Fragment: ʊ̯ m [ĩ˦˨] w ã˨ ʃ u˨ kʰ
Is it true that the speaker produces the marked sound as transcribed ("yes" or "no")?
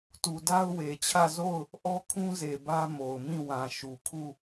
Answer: yes